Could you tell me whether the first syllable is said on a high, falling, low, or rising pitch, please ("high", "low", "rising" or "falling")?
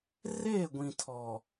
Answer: falling